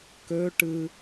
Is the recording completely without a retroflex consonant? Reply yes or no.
no